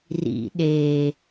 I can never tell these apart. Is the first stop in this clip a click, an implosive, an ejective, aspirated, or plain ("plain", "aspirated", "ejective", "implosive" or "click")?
implosive